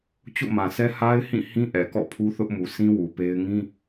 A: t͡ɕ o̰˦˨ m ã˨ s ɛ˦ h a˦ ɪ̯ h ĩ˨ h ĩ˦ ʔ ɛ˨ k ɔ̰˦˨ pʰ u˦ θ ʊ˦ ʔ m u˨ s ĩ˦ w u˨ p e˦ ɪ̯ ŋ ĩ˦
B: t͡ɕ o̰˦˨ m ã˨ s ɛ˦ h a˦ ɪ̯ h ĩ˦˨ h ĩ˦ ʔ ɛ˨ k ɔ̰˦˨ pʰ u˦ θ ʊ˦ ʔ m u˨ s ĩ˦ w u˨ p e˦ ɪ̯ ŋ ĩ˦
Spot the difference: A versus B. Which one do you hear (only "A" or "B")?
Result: B